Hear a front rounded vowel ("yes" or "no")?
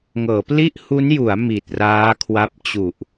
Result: no